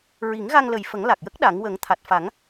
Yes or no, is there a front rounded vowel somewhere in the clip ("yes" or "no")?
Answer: no